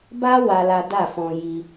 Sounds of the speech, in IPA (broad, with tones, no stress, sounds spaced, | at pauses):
b a˦ w a˦ l a˦ d a˦˨ f ɔ̃˧ j i˧